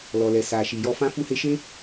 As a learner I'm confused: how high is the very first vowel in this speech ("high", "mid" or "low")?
mid